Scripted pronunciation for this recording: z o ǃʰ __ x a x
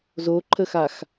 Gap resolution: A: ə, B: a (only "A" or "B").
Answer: A